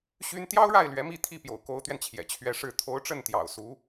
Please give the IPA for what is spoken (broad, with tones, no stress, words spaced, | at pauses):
ɕy˥n t̪jɑ˥ʊ̯ɻa˥˩ɪ̯ lɥɛ˧˥mi˥˧t̪ʰi˥˩ pjo̰˨˩ʊ̯ko˧˥ʊ̯t̪ɥɛ˧n t͡ɕʰjɛ̰˨˩ t͡ɕʰɥɛ˧˥ʂɻ̩˥˩ t̪ʰo˧˥ʊ̯ʈ͡ʂə˥˩n t̪jɑ̰˨˩ʊ̯ su˧˥